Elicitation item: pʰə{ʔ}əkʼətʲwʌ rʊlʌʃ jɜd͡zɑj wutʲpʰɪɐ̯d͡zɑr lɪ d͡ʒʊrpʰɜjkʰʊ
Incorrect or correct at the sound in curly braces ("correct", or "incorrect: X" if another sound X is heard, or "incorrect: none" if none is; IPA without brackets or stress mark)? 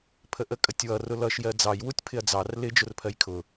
correct